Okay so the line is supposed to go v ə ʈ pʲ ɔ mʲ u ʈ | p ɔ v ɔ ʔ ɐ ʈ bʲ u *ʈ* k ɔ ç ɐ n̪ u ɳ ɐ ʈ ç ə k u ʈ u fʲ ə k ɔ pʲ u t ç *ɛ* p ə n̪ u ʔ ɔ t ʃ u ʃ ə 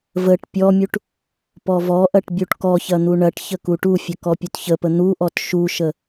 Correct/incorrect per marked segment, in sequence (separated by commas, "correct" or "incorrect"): correct, incorrect